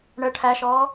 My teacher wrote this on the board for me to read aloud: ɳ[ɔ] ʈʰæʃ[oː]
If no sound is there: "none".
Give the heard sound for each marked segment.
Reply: ə, ɔː

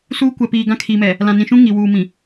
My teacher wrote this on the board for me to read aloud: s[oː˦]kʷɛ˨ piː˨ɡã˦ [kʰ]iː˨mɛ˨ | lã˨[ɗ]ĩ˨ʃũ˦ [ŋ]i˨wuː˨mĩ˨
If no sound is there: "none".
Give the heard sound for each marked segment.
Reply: uː˦, kʰ, n, ŋ

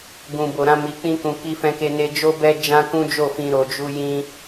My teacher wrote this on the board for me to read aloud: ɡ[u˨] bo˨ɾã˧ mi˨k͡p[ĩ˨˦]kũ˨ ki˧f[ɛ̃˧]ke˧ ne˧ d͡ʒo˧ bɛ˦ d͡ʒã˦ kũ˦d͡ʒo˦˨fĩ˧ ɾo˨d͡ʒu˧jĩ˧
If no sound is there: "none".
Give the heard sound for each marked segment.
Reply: ũ˨, ĩ˧, ɛ̃˧

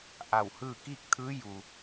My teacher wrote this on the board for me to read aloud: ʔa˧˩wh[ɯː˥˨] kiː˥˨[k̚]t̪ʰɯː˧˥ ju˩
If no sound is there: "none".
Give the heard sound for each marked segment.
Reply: ɯː˥˨, k̚

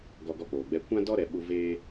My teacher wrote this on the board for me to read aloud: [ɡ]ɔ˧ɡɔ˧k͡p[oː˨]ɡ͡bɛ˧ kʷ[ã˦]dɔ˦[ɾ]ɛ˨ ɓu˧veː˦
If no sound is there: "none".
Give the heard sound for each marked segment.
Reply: ɡ, oː˨, ã˦, ɾ

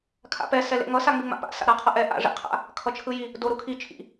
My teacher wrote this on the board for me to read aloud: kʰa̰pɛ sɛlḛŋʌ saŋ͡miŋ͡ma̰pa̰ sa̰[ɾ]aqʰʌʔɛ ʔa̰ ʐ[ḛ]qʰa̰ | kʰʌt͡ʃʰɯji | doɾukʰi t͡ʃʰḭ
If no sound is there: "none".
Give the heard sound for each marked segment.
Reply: ɾ, ḛ

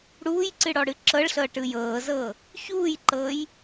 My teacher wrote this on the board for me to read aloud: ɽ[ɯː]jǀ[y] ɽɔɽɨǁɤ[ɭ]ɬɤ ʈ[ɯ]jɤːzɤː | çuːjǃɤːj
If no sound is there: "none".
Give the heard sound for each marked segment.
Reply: uː, ɨ, ɭ, ɯ

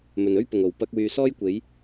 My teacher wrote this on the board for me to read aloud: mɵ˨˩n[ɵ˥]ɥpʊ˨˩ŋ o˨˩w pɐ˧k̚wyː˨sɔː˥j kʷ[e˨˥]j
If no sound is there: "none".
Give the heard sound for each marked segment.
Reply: ɵ˥, e˨˥

